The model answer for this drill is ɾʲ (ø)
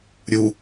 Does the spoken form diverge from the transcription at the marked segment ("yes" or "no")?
yes